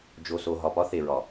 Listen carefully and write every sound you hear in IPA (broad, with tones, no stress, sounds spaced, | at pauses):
d͡ʒ o˨ s o˨ ɦ ɒ˨ p ɒ˦ θ e˨ ɹ ɒ˨